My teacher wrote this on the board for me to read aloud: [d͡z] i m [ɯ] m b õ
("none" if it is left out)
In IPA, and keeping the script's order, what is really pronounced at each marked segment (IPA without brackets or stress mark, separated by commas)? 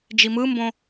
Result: d͡ʒ, ɯ